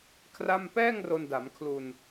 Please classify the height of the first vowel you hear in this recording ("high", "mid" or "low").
low